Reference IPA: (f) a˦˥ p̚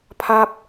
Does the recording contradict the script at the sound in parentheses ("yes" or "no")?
yes